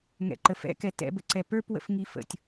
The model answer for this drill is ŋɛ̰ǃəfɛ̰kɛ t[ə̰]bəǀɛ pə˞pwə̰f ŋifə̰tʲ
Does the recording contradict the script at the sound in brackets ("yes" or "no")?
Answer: yes